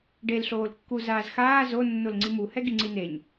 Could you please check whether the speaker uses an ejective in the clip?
no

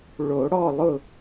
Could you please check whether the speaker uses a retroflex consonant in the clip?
yes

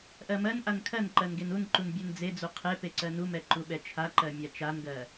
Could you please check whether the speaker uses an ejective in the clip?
no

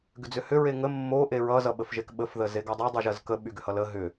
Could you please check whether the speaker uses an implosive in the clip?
yes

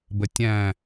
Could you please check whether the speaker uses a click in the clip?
no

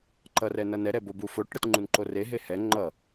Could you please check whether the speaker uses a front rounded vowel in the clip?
no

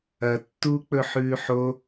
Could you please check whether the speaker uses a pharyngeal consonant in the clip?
yes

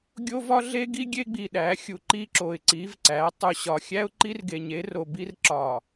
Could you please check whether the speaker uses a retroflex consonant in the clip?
no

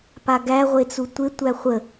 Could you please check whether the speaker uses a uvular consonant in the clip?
yes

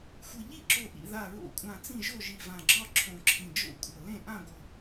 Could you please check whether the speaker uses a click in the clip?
yes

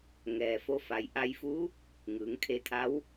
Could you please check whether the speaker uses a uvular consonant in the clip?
no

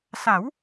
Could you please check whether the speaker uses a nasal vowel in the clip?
no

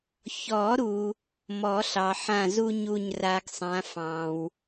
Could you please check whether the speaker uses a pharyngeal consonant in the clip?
yes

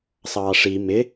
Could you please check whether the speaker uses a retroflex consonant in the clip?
yes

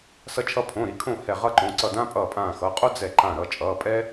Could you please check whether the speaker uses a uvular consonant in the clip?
yes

